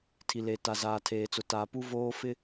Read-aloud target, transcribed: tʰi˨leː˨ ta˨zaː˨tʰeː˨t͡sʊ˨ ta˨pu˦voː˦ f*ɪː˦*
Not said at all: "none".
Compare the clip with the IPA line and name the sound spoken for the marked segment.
ɪ˦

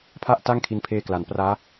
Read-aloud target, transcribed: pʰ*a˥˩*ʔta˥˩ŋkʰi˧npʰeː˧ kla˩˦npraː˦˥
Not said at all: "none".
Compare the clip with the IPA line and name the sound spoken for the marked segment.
a˥˩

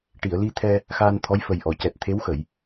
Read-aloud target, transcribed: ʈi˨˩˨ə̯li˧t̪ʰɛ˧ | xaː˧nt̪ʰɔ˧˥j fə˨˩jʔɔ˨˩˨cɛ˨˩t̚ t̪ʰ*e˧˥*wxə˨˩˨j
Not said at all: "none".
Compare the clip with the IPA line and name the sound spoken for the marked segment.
e˧˥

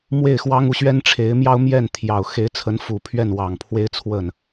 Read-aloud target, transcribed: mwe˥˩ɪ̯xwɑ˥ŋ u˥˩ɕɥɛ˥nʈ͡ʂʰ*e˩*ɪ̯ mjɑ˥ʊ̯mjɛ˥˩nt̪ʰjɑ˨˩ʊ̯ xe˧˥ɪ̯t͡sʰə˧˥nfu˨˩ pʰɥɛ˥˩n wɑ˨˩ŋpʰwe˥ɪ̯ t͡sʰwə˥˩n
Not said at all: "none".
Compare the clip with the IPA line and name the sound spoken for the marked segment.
e˧˥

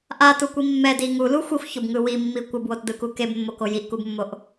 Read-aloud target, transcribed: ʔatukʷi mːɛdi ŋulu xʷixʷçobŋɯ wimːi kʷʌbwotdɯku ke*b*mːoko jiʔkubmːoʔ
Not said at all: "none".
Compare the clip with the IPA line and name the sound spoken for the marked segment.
b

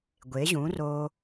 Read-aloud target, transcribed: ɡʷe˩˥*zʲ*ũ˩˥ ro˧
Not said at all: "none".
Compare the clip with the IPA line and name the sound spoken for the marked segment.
ʑ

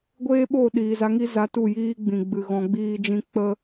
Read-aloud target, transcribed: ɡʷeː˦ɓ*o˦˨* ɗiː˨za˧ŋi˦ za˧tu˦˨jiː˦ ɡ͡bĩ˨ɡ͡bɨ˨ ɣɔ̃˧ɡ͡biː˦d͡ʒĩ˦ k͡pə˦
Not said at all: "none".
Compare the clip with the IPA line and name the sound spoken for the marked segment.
o˦˨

